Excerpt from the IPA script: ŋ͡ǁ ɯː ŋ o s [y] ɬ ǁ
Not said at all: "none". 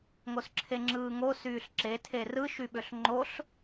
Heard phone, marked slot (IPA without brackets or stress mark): yː